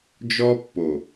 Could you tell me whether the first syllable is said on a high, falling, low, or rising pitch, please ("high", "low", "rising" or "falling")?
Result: high